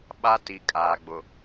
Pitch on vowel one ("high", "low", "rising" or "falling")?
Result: high